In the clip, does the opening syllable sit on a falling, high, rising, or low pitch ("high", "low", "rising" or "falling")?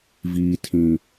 low